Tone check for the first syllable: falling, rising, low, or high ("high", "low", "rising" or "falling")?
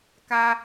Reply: high